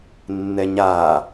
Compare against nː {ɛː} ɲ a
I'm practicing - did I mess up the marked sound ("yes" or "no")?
yes